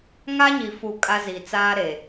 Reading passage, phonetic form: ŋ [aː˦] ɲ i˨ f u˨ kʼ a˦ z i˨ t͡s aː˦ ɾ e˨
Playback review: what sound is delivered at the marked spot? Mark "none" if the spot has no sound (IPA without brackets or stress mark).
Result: a˦